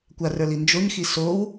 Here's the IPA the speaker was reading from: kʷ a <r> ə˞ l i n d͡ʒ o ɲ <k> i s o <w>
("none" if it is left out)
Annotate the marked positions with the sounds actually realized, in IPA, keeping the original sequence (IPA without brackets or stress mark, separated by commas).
r, x, w